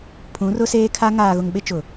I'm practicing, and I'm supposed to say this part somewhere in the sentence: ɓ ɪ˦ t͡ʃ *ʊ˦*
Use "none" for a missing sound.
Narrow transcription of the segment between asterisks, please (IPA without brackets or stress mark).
ʊ˨